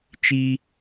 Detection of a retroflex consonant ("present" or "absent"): absent